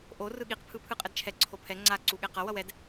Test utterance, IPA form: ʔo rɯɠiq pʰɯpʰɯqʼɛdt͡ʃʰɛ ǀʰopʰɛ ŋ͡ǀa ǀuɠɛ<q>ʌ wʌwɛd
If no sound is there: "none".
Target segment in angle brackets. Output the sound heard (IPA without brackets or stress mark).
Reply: q